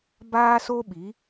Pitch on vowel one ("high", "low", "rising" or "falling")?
high